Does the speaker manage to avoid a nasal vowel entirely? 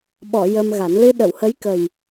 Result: yes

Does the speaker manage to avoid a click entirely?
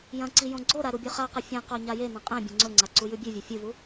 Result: no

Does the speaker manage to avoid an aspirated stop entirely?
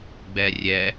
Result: yes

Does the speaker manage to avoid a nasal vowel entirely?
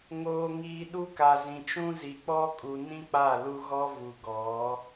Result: no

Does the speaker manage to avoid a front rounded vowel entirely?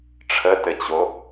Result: yes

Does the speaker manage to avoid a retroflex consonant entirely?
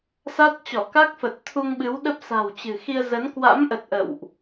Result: yes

